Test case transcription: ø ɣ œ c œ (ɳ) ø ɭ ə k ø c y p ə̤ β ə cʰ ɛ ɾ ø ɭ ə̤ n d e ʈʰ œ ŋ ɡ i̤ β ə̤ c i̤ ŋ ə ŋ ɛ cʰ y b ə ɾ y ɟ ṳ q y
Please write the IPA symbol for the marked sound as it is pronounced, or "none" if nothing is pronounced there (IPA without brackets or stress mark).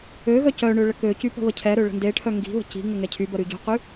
ɳ